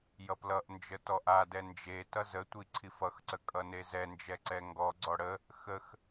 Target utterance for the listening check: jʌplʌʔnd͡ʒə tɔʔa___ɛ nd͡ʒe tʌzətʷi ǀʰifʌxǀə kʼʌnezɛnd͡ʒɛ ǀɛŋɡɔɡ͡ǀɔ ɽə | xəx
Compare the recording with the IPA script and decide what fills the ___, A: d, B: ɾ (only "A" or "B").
A